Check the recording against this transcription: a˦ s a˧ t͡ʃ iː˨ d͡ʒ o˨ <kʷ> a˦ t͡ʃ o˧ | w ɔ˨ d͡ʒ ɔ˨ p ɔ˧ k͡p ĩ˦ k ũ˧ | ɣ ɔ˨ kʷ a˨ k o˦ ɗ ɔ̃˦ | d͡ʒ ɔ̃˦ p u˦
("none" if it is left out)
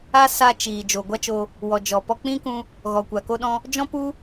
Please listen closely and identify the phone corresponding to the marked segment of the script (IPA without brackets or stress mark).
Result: ɡʷ